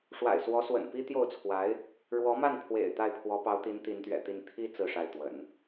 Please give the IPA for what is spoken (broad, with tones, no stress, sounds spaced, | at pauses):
ʂ w a̰˨˩ ɪ̯ s w ɔ˧˥ s w ə̰˨˩ n p i˥ t̪ j o˥˩ ʊ̯ t͡sʰ w a˧˥ ɪ̯ | ɻ w ɔ˧˥ m a˥˩ n pʰ w ḛ˨˩ ɪ̯ t̪ a˥˩ ɪ̯ pʰ w ɔ˧˥ p ɑ˧˥ ʊ̯ t̪ i˧˥ n t̪ i˧˥ n t̪ ɥ ɛ̰˨˩ t̪ i˥˩ n t̪ʰ i˥ t͡s ɹ̩˥˧ ʂ a˥˩ ɪ̯ t̪ w ə̰˨˩˦ n